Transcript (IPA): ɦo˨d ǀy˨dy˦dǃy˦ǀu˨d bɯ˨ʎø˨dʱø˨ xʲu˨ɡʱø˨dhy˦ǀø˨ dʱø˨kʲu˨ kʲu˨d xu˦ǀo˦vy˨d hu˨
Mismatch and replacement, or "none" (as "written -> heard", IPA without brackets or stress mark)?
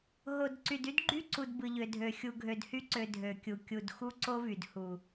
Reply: ǃ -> ɡ͡ǃ